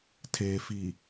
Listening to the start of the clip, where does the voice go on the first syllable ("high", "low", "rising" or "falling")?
low